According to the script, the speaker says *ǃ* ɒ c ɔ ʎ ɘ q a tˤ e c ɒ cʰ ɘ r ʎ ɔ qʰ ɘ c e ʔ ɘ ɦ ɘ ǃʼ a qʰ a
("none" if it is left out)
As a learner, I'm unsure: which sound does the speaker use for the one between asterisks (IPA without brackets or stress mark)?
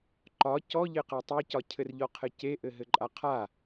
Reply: ǃ